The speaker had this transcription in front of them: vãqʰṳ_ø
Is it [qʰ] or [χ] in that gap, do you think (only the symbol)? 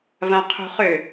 χ